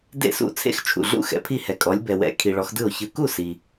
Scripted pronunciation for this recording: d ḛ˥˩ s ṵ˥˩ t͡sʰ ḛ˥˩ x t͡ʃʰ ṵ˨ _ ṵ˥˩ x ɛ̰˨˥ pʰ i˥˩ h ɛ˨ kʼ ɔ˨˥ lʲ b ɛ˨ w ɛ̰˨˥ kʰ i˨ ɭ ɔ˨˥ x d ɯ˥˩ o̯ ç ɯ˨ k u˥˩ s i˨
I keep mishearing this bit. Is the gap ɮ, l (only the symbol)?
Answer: ɮ